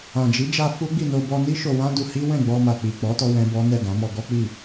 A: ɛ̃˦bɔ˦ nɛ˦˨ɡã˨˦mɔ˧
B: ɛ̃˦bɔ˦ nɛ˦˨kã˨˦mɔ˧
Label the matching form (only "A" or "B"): A